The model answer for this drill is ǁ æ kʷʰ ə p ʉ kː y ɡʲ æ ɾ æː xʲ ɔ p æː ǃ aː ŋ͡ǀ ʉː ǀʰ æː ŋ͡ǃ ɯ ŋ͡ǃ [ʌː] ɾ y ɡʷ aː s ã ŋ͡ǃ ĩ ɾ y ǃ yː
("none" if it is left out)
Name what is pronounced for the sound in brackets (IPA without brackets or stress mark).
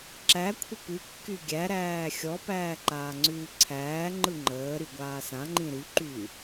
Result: əː